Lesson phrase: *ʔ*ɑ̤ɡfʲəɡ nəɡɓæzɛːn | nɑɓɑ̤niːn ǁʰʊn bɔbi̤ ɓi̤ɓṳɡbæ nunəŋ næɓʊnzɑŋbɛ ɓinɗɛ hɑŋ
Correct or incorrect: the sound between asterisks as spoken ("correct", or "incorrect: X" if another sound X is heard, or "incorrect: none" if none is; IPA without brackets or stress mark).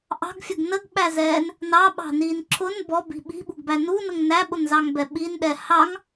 correct